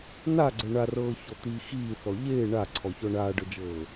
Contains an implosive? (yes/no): no